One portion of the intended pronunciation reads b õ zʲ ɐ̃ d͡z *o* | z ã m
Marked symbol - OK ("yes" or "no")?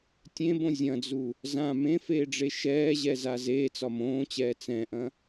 no